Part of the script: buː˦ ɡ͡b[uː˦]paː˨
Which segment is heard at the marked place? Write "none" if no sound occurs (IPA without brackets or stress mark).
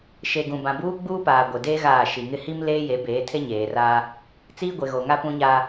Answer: uː˦